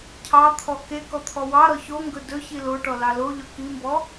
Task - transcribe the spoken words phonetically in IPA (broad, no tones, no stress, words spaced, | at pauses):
cʰɑt̪ʰɔ ke kɔt̪ʰɔwɑɾɔ çoŋɡɵ dɵçi loʈɔ lɑloʎɔ kimbɔ